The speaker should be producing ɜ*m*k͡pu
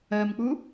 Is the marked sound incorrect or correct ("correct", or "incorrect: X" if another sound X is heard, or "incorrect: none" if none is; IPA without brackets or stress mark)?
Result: correct